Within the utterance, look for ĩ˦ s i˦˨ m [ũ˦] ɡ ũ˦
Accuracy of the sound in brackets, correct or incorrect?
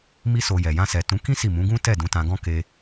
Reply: incorrect: ũ˨˦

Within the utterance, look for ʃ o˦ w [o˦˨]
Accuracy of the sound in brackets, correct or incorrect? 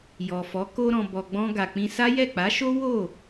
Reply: correct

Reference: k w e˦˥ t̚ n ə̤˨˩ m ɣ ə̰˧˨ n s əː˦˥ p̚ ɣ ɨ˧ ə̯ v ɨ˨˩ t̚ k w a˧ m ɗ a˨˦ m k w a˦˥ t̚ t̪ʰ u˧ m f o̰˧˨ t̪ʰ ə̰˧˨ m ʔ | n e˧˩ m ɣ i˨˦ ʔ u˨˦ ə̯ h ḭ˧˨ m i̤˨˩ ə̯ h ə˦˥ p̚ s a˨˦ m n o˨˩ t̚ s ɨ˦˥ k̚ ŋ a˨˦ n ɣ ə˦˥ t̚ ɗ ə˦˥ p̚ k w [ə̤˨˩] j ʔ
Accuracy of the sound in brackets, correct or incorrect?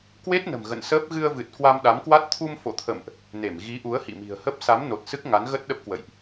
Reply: incorrect: ə̰˧˨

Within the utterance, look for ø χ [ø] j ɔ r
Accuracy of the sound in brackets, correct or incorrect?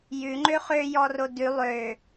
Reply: correct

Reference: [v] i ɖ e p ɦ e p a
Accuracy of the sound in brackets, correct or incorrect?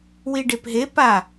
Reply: incorrect: w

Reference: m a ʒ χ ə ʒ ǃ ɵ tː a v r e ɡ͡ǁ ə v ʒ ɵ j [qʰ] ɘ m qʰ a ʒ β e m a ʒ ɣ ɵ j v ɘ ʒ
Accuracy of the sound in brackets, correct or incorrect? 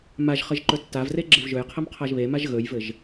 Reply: correct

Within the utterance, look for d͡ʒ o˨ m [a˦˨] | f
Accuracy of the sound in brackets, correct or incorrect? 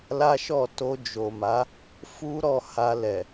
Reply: incorrect: a˨˦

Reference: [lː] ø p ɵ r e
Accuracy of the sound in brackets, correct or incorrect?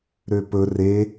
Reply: incorrect: ɾ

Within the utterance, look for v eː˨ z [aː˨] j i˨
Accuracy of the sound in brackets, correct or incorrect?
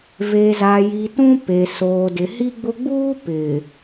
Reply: correct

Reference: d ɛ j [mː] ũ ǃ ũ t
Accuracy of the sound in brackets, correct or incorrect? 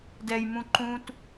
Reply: incorrect: m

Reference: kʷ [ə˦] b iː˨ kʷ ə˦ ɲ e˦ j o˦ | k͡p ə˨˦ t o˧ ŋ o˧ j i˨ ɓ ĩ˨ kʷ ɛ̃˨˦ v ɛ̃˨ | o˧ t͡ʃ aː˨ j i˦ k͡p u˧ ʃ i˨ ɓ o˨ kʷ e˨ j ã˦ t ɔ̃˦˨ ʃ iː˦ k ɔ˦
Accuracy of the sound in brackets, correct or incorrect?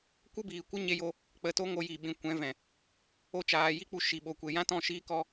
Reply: correct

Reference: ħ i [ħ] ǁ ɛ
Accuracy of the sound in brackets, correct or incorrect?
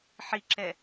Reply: incorrect: none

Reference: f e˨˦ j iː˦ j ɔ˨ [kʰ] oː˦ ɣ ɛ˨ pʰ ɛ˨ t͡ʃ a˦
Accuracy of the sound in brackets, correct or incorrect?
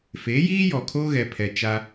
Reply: correct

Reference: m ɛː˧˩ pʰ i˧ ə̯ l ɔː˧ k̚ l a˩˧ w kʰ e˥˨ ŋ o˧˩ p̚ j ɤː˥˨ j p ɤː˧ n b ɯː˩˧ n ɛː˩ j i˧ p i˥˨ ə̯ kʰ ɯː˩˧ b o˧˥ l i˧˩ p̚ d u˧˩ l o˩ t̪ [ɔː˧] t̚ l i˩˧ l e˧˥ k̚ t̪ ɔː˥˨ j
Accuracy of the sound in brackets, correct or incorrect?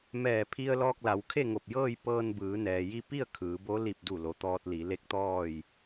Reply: correct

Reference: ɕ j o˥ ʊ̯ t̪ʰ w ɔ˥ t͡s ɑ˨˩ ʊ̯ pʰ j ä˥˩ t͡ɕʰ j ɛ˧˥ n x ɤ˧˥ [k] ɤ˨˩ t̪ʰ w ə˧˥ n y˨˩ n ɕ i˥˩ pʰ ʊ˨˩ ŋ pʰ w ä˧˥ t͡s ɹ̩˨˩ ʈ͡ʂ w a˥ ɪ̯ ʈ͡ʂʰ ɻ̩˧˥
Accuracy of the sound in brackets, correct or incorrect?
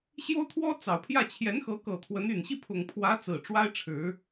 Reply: correct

